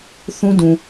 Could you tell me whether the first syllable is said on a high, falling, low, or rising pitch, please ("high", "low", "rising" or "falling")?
high